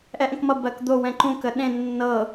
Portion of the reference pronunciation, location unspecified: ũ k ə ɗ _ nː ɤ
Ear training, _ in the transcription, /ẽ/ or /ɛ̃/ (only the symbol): ẽ